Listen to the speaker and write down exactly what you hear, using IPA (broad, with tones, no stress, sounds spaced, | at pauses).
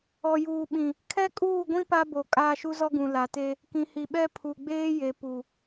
ɔ˨ j uː˨ ɓ ĩ˨ | kʰ ɛ˦ kʼ uː˦˨ ɡʷ ĩ˦ p a˦ b o˨ kʼ aː˦ ʃ u˦ z ɔ˦ ɡ ũ˨ l a˨ t e˦ | k ĩ˨ h i˨ ɓ ɛ˦ pʰ u˨ ɡ͡b eː˦ j e˨ p u˨